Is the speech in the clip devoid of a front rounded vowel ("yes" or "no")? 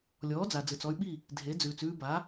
no